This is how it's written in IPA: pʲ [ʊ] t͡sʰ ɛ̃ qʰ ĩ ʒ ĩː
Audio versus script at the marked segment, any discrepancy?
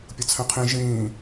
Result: no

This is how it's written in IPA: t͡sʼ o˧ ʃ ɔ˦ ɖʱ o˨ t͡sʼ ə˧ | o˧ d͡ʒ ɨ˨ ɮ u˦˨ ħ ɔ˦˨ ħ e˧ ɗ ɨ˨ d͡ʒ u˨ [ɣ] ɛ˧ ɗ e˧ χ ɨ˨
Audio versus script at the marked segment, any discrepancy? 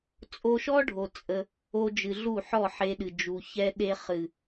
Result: yes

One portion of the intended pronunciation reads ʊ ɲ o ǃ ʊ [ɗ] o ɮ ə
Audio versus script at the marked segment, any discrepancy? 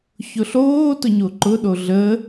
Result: no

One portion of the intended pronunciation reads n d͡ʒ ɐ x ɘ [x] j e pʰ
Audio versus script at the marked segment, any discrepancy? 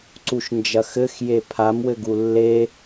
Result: no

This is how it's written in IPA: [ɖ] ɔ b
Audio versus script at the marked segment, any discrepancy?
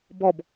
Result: yes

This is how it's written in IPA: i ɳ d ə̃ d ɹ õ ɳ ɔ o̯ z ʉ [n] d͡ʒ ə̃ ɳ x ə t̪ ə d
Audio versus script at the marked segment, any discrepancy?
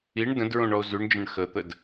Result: yes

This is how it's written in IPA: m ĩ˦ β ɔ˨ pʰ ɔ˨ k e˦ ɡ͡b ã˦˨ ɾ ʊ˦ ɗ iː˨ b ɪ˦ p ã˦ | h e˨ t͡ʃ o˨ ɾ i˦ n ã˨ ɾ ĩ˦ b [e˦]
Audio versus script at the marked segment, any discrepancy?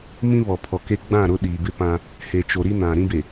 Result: yes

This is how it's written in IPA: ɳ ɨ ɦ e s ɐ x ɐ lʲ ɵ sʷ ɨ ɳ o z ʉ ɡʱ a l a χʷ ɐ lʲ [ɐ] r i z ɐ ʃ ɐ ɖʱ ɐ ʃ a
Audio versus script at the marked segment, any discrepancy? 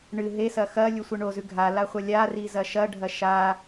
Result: yes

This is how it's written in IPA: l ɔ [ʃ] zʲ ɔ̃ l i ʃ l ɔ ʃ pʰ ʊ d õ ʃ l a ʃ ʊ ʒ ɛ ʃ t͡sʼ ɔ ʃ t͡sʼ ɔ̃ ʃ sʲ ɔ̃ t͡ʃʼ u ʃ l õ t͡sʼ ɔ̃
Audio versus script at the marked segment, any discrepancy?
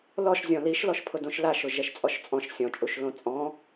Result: no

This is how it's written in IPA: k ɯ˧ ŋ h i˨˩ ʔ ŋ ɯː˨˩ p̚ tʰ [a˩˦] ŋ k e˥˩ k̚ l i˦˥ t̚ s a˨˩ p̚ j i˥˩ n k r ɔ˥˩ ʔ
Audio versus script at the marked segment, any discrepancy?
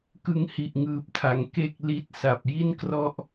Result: no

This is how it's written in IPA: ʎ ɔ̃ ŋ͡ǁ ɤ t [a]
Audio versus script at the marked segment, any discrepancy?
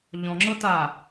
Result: no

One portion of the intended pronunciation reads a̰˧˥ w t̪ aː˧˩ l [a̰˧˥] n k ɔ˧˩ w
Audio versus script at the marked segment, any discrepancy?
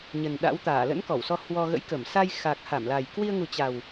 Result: yes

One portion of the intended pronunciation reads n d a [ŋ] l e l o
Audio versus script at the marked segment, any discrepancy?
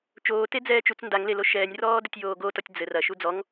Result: no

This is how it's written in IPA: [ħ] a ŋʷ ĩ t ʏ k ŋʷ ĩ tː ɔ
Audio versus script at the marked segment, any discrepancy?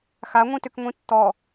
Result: yes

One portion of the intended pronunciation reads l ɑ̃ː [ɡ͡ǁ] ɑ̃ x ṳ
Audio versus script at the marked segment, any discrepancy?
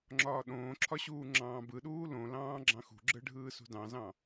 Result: no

